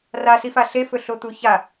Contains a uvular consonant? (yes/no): no